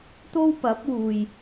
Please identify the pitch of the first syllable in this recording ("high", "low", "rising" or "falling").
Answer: high